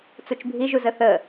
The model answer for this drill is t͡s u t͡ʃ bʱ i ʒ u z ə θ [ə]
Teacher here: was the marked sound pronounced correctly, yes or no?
yes